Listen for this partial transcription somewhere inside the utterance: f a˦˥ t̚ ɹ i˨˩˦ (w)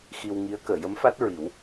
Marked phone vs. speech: correct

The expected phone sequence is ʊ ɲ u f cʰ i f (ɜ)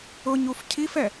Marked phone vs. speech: incorrect: ɛ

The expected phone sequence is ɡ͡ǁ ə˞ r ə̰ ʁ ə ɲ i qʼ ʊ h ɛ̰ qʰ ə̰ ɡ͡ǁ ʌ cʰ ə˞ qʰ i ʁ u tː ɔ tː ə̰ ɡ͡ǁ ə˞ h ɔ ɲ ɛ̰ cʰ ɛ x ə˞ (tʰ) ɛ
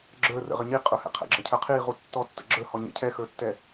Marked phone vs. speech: incorrect: tː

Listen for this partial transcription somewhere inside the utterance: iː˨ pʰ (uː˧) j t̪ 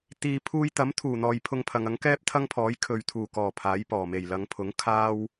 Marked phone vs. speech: correct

